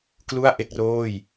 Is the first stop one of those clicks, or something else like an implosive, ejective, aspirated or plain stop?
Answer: plain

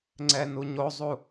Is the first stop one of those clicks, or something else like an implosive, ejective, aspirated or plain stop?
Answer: click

